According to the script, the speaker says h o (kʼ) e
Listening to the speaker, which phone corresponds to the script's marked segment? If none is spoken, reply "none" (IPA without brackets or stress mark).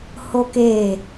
k